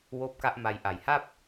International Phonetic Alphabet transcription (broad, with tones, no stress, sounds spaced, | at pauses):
w oː˦˥ p̚ k a˦˥ ʔ m a˧ j ʔ a˨˩ j h a˥˩ p̚